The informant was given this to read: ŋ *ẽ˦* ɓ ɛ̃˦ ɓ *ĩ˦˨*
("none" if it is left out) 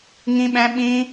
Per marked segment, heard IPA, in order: ĩ˦, ĩ˦

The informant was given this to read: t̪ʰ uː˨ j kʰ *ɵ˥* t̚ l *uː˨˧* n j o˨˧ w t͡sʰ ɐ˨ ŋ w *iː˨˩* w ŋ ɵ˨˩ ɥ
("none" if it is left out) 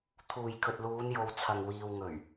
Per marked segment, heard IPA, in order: ɵ˨, uː˨˧, iː˨

